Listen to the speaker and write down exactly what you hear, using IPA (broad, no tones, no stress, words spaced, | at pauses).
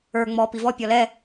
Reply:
ə˞ ŋ͡mɔ pivɔ pʲɔlɛ